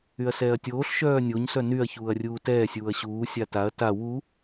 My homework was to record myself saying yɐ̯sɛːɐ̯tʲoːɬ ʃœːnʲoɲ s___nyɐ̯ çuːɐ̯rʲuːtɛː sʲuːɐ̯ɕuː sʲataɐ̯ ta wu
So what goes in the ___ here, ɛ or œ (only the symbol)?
œ